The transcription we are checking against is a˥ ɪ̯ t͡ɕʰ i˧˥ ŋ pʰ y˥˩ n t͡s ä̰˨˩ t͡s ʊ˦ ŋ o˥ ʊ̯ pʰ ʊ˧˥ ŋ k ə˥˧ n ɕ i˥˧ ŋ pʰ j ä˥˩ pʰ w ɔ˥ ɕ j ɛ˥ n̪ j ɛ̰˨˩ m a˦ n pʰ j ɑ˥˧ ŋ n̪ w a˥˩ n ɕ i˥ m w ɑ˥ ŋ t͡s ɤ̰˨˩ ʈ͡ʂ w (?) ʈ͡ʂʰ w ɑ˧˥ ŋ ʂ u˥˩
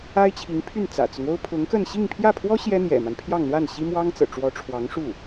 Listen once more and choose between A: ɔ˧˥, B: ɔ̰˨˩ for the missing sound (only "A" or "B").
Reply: A